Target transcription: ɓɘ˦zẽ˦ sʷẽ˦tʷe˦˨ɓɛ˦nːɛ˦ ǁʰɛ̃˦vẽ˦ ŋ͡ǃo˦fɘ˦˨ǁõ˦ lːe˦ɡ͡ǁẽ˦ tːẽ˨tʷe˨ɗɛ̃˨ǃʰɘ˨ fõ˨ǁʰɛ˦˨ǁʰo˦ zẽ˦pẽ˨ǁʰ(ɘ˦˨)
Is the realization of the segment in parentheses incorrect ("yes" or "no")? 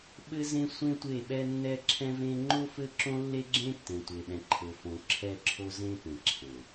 yes